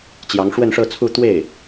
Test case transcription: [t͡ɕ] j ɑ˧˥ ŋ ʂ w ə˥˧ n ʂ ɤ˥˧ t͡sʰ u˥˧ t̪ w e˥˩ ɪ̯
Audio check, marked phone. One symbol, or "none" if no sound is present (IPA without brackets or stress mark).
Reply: t͡ɕ